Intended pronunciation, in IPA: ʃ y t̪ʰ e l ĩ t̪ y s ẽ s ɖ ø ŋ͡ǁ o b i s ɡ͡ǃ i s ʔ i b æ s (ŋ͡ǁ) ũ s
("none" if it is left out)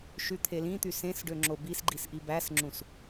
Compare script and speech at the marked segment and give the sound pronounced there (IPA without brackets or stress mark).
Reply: ŋ͡ǁ